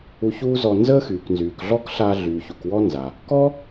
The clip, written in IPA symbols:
u˧ ç uː˥ z ɔ˧ n z əː˥ x yː˩ k n z yː˩ k ɮ ɔ˥ k ɬ aː˧ ɮ yː˩ ç u˩ k w ɔ˥ n z a˩ | k ɔ˥

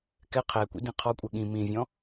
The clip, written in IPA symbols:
k ɛ qʰ ɛ kʷ ḭ d ĩ qʰ ɔ kʷʼ ɛ ɠ ĩ m ĩ vʲ ɔ̃

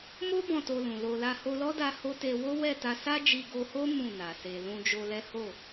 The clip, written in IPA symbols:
m o˦ b ɔ̃˦˨ t o˧ l ũ˨ l o˧ l a˦ h o˧ l ɔ˦ d a˧ h o˦ t e˧ w o˦ w ɛ˦˨ t a˧ s a˦ d͡ʒ i˧ ɡ o˧ h o˦ m ũ˦˨ n a˨ s e˧ l ũ˧ d͡ʒ o˧ l ɛ˦ h o˦˨

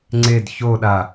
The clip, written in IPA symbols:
ŋ͡ǀ e d ç o ɗ a

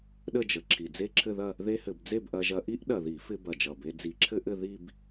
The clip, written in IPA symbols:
ɗ ə˥˧ d͡ʒ ə˨˩ ǁʰ i˨˩ d͡z e˥˧ ǁʰ ɘ˥˧ ð ɐ˥˧ | ð e˥ h ɘ˧˩˧ b d͡z e˥˧ b ʔ ɐ˧ ʒ ɐ˧ ʔ i˥ ʔ ɗ ɐ˨˩ ð i˧˩˧ f ɪ˧ b ɐ˨˩ d͡ʒ ʌ˨˩ b e˧ d͡z i˧˩˧ ǁʰ ɘ˥ ʔ ɘ˥˧ ð i˥˧ b

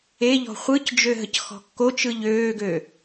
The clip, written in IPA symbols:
e ʎ ɔ̤ χʷ ɯ c d͡ʒ ø ɦ ə c x ɔ̤ kː o t͡ʃ ɯ ʎ øː ɡ ø

